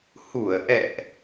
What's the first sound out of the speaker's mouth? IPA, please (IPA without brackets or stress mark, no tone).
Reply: h